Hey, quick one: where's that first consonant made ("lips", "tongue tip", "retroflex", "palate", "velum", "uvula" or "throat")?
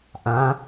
throat